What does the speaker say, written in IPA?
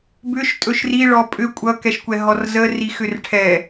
b ʏ ʃ tʼ ɵ ʃ r i ɭ ɔ pʼ ʏ kʷʼ ʌ k ɛ ʃ kʷ ɛ ɦ ɔ r z ə r i x ʏ r ʈʰ ɛ

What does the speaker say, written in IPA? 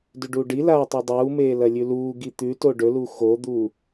d ʉ ɖ uː ɖ i l aː tˤ e dˤ uː m eː l ɐ lʲ ʉ l uː ɡ i t̪ ʉ t o ɖ ɵ l u x o d̪ u

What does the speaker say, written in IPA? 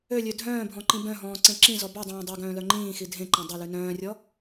ø lʲ ø dʱ œ̃ː bʱ ɔ̃ ǃ ĩ b œ̃ ɦ ɔ̃ː ǀ ẽ ǁ ĩ z ɔ b ʉ dˤ œ̃ː dˤ ø ɡ œ̃ː l œ ŋ͡ǃ ĩː x i dʱ ẽ ǃ ẽ dˤ o l ʉ n œ̃ː rʲ ɔ

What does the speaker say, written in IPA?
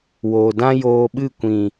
w oː˨ d ã˦ j oː˧ ɓ ɨ˦˨ kʷ ĩ˨

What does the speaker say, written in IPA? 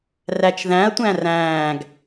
r æ t͡ʃ ð æ̃ ɐ̯ tʷ æ̃ r æ̃ː ɡ

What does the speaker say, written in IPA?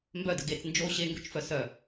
m b œ d ə ɡ e t͡s n d͡ʒ o ɕ e ŋ ɡ ø t͡ʃ f œ s œ

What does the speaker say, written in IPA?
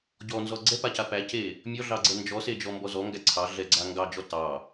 ɟ ɔ n z ɔ ɡ͡ǀ ɛ p a c a p æ c e | mʲ ɔ ɮ ɑ ɡ͡ǀ ɛ n d͡ʒ ɔ s e d͡ʒ ɔ m b ɔ z ɔ ŋ ɡ æ ǀʰ ɑ ɮ ɛ ɡ͡ǀ a ŋ ɡ ɑ d͡ʒ ɔ t ɑ

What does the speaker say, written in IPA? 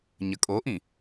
ɲ ə kʼ o ʔ ĩ

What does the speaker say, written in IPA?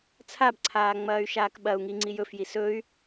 t͡sʰ a b ǀʰ aː ŋ͡m ɐː y̯ ʃ aː k ɓ ɐ u̯ ŋ i ŋ͡ǀ i j ɵ f j i s ɵ y̯

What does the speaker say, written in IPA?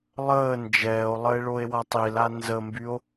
lˠ əː n d͡ʒ ɛː o̯ lˠ ə e̯ ɭ o e̯ w a tˤ i l a n z ə m b y o̯

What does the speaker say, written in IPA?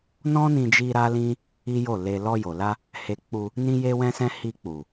n ɔ̃˦ n ĩ˧ d͡ʒ i˧ ɾ a˦ l ĩ˦ | i˦ j o˦˨ l e˧ l ɔ˧ j o˨ l a˧ | h e˧ k͡p u˧ | n ĩ˦ j e˦ w ɛ̃˦ s ɛ̃˦ h i˧ k͡p u˨

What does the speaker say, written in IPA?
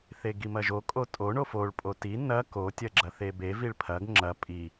θ e ɡ i m ɐ ʒ o kʼ o tʼ o ɳ o f o ɭ pʼ o t i n ɐ k o tʲ ɐ ɡ͡ǁ ɐ θ e b e v i ɭ pʰ ɐ ɡ ŋ͡ǁ ɐ pʼ i

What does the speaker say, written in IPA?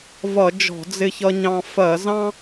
v ʌ˧˩˧ d͡ʒ ɔ̤˧˩˧ d͡z ɪ˧ ç ʌ˧ ɲ ɑ̃˧ f ɜ˧˩˧ z ɑ̃˥

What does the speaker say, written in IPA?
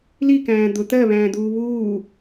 l i k æ̃ː d̪ ʊ t̪ ɜ β æ̃ː d̪ uː β uː

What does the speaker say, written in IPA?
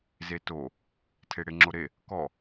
z e t o | tʰ e ɽ e ŋ͡ǁ o ɾ e | k ɔ

